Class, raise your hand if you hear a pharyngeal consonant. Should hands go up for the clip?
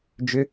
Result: no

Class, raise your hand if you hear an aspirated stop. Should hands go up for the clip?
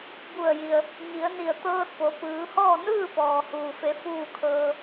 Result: yes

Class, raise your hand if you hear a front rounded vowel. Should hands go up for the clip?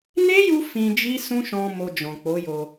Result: no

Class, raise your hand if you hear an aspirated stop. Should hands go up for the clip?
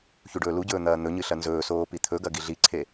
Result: yes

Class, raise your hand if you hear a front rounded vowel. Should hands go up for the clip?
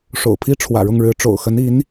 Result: no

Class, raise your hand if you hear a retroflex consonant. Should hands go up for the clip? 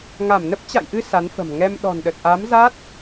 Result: no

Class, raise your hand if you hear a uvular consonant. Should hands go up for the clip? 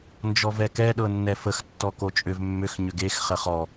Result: yes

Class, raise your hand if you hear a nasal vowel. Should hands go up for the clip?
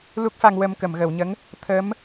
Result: no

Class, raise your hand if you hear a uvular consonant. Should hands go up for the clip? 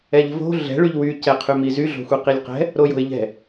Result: yes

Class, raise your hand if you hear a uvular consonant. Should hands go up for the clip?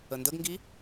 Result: no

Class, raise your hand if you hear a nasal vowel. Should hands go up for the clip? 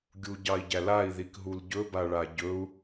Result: no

